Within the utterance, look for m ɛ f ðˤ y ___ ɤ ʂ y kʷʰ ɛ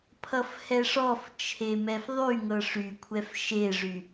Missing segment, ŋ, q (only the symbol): ŋ